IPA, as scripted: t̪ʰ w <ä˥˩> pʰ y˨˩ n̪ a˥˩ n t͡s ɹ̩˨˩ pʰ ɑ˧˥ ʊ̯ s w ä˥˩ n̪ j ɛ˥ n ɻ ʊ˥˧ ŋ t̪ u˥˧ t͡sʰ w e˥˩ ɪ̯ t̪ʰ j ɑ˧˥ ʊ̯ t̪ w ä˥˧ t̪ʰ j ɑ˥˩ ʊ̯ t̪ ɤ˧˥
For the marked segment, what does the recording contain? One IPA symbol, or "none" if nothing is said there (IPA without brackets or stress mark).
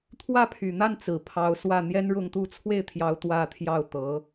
ä˥˩